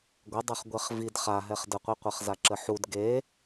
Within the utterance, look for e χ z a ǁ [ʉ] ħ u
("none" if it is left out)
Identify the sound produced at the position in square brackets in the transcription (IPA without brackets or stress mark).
ə